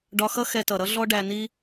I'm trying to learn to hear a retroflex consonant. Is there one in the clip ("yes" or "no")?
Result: yes